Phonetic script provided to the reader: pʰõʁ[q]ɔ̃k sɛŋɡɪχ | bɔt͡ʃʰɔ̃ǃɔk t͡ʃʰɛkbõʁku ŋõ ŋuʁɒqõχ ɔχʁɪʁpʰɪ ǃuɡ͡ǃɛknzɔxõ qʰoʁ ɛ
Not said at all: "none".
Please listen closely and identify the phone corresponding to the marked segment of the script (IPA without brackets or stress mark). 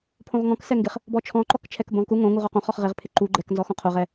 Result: ŋ